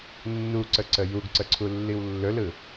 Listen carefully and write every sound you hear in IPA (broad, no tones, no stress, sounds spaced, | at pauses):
nː u ǀ ə ǀ ə j u ɡ ǀ ə ǀʰ u lː i w lː ɵ l ɯ